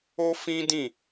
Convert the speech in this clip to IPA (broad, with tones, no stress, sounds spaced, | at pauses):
o˦ f ĩ˦ d ĩ˦˨